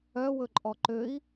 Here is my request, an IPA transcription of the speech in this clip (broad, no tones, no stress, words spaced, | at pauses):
œwɵǃʼɔ ǃøi̯